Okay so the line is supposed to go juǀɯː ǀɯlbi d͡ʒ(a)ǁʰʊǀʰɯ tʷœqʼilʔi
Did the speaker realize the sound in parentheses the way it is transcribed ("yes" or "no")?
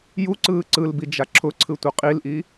yes